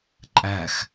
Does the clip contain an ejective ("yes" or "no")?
yes